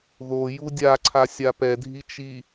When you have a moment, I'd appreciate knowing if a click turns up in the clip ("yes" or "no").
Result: yes